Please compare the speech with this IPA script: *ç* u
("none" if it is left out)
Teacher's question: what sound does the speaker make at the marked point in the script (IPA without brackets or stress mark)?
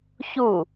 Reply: ç